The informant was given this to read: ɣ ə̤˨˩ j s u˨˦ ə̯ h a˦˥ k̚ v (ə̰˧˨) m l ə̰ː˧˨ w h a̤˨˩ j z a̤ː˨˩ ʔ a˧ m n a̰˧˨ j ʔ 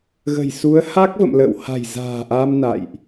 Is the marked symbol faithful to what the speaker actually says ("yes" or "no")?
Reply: yes